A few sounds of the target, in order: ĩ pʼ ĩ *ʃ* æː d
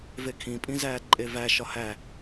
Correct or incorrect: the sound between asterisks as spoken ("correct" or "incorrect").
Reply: incorrect